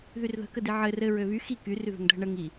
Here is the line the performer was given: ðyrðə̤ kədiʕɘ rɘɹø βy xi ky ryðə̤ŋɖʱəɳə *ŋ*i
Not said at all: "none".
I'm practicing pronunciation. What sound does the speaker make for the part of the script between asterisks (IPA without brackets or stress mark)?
ŋ